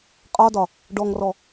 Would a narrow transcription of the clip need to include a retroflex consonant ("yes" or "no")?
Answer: yes